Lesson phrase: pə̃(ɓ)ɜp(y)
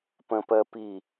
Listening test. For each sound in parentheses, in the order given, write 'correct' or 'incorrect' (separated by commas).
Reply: incorrect, incorrect